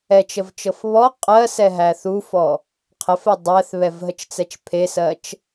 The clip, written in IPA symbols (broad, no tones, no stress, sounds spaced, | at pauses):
ɛ t͡ʃ ə v t͡ʃ ɤ f β ɔ qʼ ɜ s ɛ ɦ æ θ u f ɔ | qʰ ə f ɛ dˤ æ θ β ɛ v ɦ ə t͡ʃ t͡s ɛ t͡ʃ pʰ e s ɜ t͡ʃ